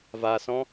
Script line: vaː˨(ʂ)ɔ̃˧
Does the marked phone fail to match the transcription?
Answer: yes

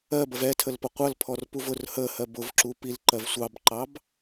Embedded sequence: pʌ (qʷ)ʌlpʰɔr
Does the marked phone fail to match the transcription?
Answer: no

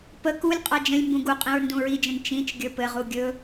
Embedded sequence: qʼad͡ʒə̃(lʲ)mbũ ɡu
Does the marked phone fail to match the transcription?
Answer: no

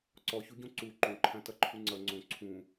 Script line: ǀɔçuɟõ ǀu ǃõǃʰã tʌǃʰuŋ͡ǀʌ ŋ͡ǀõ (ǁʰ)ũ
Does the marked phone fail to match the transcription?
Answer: yes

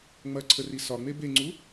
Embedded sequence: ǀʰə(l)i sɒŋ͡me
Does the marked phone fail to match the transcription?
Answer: yes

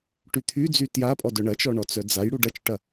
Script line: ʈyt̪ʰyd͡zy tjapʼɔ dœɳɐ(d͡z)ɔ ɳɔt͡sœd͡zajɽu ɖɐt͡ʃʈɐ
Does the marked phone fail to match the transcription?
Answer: yes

